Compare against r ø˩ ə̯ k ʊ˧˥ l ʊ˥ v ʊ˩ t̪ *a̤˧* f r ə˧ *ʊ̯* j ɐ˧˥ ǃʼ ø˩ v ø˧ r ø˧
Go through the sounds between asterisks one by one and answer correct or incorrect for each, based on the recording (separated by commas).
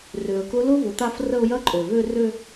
incorrect, correct